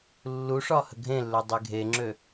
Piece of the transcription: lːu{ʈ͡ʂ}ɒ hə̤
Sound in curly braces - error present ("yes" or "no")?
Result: yes